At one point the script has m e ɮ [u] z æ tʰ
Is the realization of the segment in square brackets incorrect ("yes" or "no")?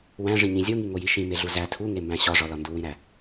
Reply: no